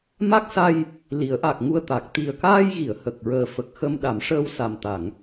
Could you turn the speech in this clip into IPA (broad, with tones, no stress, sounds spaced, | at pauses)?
m a˦˥ k̚ s a˧ j | l i˨˩˦ ə̯ ʔ a˨˩ k̚ ŋ u˧ ə̯ t̪ a˨˩ k̚ t̪ i˨˩ ə̯ k aː˧ j ɣ i˨˩˨ ə̯ h ə˨˩ k̚ ɹ əː˨˩ f ə˨˩ k̚ x ə˧ m ɗ a˨˩˦ m ʂ əː˧ w s a˨˩ m t̪ a˨˩˨ ŋ